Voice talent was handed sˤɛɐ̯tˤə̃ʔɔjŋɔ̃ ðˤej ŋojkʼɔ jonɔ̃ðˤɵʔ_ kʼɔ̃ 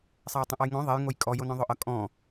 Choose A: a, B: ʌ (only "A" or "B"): B